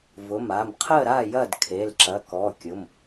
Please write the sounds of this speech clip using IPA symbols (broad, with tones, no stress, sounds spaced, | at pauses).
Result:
v ʊ˩˧˩ m a˩˧˩ m qʰ ə˥˨ ɾ a˥˨ j ɐ˥˨ d kʰ e˩˧˩ l ǁ ɐ˩˧˩ k ɔ˩˧˩ kʲ ʊ˩˧˩ m